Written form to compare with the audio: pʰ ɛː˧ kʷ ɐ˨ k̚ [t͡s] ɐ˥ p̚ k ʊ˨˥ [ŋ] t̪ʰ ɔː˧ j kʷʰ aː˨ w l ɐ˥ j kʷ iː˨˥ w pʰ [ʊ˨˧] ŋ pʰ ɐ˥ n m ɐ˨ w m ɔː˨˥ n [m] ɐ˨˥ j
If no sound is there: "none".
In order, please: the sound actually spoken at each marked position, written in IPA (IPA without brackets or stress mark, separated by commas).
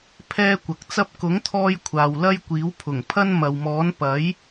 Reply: t͡s, ŋ, ʊ˨˩, p